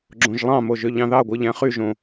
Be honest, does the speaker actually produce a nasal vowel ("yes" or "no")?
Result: yes